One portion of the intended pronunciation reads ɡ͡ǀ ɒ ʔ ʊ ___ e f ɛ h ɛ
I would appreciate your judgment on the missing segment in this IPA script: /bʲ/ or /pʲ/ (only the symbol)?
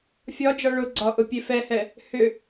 pʲ